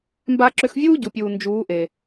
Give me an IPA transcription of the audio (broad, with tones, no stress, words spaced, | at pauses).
mba˧ǁʏ˧xvʲuː˦ ɟu˨pʲuː˨nd͡ʒuː˨˦ ʔe˨